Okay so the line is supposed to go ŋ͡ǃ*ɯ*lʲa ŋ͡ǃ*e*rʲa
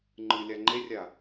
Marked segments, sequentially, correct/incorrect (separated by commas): correct, correct